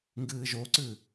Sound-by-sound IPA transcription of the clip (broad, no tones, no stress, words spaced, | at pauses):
ŋɡɨːʒoǀɨ